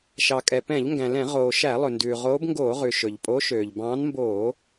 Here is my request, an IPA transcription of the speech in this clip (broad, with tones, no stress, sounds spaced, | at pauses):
ʃ ɑ˩ kʼ ɛ˩ p ɛ̃˧˩˧ ʎ ŋ ɡ æ̃˩ l ɛ̃˧˩˧ ʁ oː˩ ʃ æ˧˩˧ lˠ ɵ˩ n d ʉː˩ ʁ oː˨˦ b ŋ ɡ oː˧˩˧ ʁ ʉ˩ ʃ ɵ˩ ʎ pʼ o˨˦ ʃ øː˩ ʎ b ɑ̃ː˨˦ n m b oː˧˩˧